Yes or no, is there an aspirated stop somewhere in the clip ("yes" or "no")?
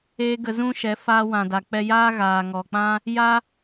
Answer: no